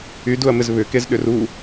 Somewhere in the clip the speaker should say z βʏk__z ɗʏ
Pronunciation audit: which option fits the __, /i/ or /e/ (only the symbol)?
e